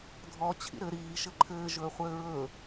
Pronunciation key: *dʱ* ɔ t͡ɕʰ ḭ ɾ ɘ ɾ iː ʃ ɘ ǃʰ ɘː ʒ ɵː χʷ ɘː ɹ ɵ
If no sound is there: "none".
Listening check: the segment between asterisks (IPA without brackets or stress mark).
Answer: dʱ